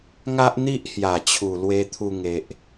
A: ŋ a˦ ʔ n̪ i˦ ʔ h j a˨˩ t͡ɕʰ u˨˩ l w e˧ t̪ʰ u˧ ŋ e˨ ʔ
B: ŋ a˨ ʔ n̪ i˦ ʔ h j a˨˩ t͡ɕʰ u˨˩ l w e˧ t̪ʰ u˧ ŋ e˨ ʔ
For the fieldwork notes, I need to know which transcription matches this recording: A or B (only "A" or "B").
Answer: A